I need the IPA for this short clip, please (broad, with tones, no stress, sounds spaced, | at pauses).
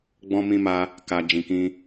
ɡ͡b ɔ̃˦ m ĩ˦ m a˦ | k a˦ d͡ʒ ĩ˧ k ĩ˦